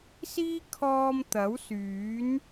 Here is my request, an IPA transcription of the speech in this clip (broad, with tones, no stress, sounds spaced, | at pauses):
s iː˥ kʰ ɔː˧ m t̪ ɐ˨˥ w s yː˨˥ n